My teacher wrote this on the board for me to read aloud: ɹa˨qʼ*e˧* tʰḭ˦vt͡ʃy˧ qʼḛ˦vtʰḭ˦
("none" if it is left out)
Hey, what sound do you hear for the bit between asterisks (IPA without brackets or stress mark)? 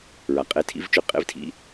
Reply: e˧